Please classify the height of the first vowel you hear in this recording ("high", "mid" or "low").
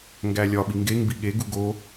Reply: low